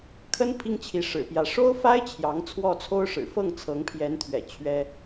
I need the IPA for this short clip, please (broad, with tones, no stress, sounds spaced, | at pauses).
kʰ ə˥ n pʰ i˥ ŋ t͡ɕʰ i˧˥ ʂ ɻ̩˨˩ p j ä˧˥ ʂ o˥ ʊ̯ f a˥ ɪ̯ t͡ɕʰ j ɑ˧˥ ŋ t͡sʰ w ɔ˥˩ t͡sʰ o˥ ʊ̯ ʂ ɻ̩˨˩ f ɤ˥˩ ŋ t͡sʰ ɤ˧˥ ŋ pʰ j ɛ˧˥ n t̪ʰ ɥ ɛ̰˨˩ t͡ɕʰ ɥ ɛ˥